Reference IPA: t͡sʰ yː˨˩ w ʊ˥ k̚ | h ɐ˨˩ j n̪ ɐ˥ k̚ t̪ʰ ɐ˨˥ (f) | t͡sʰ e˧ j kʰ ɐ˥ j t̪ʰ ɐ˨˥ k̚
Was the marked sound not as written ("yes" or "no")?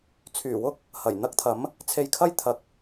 yes